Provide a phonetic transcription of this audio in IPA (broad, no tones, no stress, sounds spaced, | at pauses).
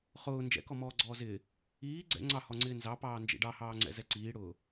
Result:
χ ʊː n d͡ʒ ɛ̰ k ɔ m ɔː ɡ͡ǀ ɔː z ɪː | iː ɡ͡ǀ ɛ̰ ŋ͡ǀ ɑ h ɔ ŋ͡ǀ ɪː n z ɑ p ɑː n d͡ʒ ḭ ɖ ɑ h ɑː ŋ͡ǀ ɛ̰ z ɛ ǀ iː ɽ ʊː